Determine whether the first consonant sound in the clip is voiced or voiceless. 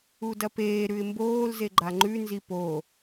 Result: voiced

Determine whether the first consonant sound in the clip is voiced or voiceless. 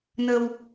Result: voiced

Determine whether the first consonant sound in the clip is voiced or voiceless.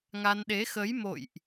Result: voiced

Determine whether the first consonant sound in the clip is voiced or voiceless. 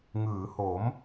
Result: voiced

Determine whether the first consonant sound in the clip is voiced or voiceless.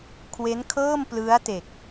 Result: voiceless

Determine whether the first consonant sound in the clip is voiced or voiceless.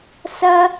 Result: voiceless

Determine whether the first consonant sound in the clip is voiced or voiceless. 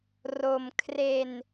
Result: voiced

